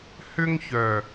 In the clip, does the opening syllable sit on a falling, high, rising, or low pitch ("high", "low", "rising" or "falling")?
high